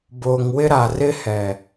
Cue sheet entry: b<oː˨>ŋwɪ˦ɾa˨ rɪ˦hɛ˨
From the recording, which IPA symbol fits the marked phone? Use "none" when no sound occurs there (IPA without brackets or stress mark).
oː˨